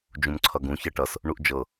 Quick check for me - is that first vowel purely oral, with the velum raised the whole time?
no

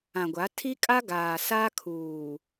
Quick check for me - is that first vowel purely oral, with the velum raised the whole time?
no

